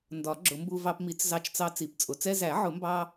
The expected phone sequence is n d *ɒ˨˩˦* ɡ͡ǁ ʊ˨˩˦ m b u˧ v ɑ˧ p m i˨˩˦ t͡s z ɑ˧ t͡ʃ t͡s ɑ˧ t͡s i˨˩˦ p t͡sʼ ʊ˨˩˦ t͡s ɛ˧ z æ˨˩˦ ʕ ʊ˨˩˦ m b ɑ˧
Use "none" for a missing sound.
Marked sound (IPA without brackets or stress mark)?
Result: ɒ˨˩˦